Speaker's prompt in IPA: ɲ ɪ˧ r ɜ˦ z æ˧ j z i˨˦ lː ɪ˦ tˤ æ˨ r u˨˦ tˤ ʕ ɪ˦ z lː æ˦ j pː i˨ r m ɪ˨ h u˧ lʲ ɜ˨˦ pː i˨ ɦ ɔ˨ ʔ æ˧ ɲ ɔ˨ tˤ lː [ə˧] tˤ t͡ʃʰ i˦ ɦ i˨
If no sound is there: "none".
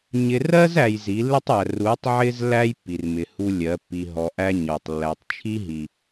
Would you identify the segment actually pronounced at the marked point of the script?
æ˧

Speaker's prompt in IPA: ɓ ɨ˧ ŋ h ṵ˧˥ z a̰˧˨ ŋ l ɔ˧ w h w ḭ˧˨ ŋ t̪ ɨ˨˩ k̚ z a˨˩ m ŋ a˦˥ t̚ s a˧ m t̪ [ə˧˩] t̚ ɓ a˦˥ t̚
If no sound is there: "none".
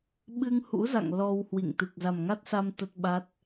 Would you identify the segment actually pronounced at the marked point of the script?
ə˦˥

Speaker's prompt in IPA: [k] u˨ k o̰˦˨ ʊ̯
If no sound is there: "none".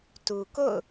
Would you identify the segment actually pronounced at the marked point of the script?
t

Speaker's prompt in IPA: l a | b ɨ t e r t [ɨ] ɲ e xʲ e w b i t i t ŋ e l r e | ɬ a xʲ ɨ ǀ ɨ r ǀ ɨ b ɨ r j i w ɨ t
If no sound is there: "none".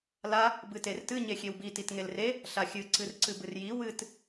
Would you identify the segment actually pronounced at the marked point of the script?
ɨ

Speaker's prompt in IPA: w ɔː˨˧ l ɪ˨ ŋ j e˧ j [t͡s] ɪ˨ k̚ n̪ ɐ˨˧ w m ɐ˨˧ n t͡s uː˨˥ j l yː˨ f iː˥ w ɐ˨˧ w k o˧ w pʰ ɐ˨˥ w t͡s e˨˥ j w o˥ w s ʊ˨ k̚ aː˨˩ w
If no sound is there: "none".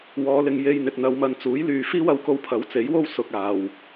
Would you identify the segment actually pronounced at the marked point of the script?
n̪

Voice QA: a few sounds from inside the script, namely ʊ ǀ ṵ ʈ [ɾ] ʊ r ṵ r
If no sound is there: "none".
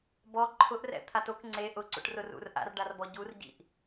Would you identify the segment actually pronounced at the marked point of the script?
r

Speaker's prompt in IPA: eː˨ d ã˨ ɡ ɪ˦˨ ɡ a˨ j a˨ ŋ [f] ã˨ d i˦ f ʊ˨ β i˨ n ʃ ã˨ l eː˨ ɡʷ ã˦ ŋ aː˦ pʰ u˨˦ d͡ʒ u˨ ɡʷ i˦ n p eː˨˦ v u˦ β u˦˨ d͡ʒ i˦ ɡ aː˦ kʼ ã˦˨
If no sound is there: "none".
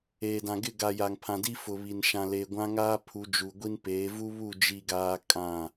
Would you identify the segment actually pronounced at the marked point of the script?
pʰ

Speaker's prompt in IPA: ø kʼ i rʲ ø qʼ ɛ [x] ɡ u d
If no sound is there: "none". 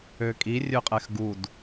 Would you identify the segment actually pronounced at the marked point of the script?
x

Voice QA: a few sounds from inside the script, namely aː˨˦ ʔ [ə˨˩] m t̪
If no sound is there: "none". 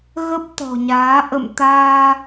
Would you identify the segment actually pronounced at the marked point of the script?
ə̰˧˨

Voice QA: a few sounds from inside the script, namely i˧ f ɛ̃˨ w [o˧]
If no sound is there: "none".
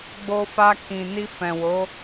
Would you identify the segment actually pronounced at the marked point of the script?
o˨˦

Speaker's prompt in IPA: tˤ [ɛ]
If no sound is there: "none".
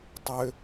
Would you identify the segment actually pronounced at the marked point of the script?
ʏ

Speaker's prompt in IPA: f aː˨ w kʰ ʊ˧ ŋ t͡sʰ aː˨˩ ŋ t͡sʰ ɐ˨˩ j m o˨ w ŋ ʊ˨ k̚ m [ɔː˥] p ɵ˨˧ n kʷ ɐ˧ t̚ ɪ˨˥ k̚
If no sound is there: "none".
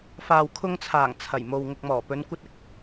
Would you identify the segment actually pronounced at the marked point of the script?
ɔː˨˩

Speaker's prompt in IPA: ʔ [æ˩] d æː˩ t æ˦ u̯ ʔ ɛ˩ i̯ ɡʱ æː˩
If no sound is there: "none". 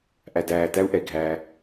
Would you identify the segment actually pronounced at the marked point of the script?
æ˩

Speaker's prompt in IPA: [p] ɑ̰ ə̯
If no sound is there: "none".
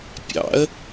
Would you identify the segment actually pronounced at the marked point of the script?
pʲ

